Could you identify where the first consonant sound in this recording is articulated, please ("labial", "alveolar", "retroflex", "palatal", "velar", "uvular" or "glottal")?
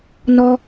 alveolar